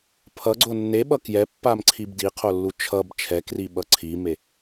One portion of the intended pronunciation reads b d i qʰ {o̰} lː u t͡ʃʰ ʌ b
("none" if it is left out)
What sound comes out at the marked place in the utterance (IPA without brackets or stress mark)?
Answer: o